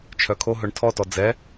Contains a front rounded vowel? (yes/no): yes